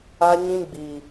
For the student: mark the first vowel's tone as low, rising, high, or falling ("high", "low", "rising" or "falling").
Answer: high